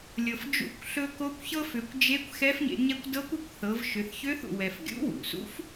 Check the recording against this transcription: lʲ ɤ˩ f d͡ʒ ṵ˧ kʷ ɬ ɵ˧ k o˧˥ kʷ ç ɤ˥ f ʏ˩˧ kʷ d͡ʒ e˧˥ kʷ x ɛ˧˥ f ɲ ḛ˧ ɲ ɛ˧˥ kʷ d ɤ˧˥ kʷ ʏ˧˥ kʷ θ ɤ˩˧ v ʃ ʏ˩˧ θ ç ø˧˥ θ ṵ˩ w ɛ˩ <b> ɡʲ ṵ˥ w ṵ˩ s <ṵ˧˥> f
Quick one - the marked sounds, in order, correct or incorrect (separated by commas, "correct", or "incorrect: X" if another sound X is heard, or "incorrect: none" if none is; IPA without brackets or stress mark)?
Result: incorrect: f, correct